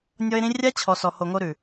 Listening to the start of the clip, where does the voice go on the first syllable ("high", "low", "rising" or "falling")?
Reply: high